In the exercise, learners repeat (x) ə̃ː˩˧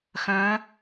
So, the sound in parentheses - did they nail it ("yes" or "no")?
yes